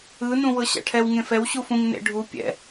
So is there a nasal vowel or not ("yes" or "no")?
yes